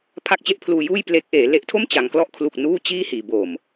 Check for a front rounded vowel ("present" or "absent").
absent